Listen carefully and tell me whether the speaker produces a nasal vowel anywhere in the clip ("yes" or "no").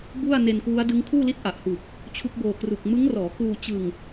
no